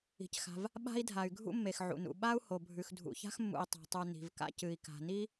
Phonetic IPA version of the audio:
i̤˩cxa̤˩v | ɓa̤˥i̯dʱa˩y̯ɡʱṵ˥ mːe˩xʕṵ˩nṵ˩ ɓa˥u̯ho˩ bʱʉ˩xdʱṵ˩ça̤˥x mːṵ˩i̯tˤa̤˩tˤu˩ ni̤˩vka̰˥ cɨ˩i̯ka̤˩ni˥

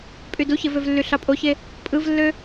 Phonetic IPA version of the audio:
pʼyduçevøv lːyɬɑpʼoçe | pʼɯvlːø

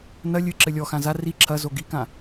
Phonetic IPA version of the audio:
nɐ lʲɨ ǁɘlʲɔxã za ri ǁʰɐ zoɡikã

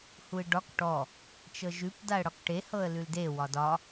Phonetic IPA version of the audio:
huɪ̯ɖɒk ʈɔ | t͡ʃɤʒʉp daə̯ɽɒkʈe hɤə̯lʉlde wɒdɒ

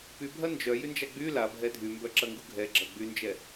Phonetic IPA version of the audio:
pybʱɐ nd͡ʒœjynd͡ʒa ɡ͡by labʱɛ dʱymbœǁɐŋɡu ɡʱɛɡ͡ǁɐ ɡ͡bynd͡ʒɛ

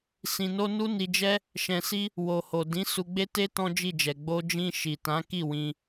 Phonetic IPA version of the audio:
sĩ˨no˧ nu˦ni˧d͡ʒɛ˦ | ʃɛ̃˨si˧ | wo˨ho˨ dĩ˨˦ su˧ɡ͡be˦ te˦ tɔ̃˦d͡ʒi˦˨d͡ʒɛ˨ ɡ͡bo˧d͡ʒĩ˧ ʃi˨tã˨˦ki˦˨ wĩ˧

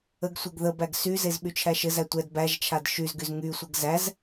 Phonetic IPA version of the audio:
əɡsʷeɡ ðəbæɡ syzez ɓyt͡ʃʰæʃɘzæ tʷɛd bæʒt͡ʃʰad ʃyzɡyz ŋysʷɘɡ zæz

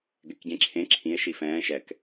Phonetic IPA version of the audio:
ɡɛkɟẽǁʰẽ ǁʰĩe̯ ʃifɛ̃ː ʃɛk

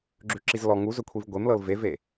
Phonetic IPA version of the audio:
ɡ͡ǁʉǁizlɔ ŋuzɵ kʷʰivɡʷemlɤl veve

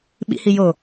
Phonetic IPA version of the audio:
ɓḭhi jo

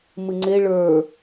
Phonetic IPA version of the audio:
mɨŋ͡ǀe ɭə˞

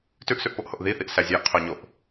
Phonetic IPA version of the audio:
tʉʔsʉʔpoʔhoʔ ðiθiʔsæ zʲæʔqʰoɲoʔ

